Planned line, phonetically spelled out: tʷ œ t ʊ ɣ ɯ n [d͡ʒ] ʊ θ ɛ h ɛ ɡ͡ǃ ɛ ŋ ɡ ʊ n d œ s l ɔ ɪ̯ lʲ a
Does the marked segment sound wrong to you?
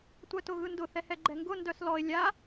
yes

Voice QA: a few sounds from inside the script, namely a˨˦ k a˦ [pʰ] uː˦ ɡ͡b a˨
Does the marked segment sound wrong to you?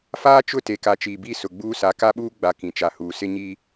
yes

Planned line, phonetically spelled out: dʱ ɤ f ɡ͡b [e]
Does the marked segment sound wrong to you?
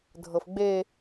no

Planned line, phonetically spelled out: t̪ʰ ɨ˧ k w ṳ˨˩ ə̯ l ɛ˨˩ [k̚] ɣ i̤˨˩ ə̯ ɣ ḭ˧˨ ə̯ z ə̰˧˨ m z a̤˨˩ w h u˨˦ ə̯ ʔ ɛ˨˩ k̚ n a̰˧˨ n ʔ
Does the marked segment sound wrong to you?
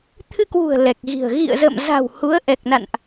no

